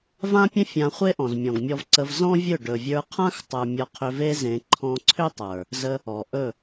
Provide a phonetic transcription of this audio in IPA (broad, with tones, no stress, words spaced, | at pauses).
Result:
vã˦pʲə̃˦ fʲã˧χʷe˦ ʔɔ̃˨zmʲɔ̃˨ɡmʲɔ˧vǀə˧v zɔ̃˦vʲɵ˦˨ ɖɵ˨ vʲə˞˧qʰã˦xtˤə˞˨ mʲɔ˧qʰʏ˧ve˦ zẽ˧ ǃʰɔ̃˧ǀʰʏ˦tˤə˞˨ | zə˧ | ɔ˨ ʔɵ˦˨